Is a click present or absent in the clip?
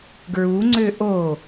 present